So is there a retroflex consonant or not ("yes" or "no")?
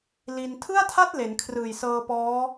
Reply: no